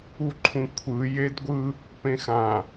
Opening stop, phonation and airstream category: click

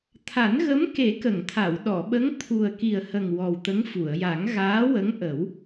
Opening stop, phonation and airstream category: aspirated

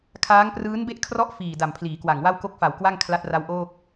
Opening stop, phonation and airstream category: aspirated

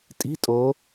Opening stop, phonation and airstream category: ejective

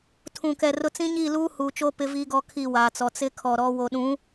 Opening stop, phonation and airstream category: aspirated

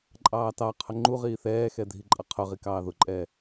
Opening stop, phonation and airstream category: click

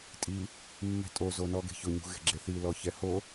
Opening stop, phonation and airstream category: ejective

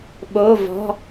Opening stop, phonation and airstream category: implosive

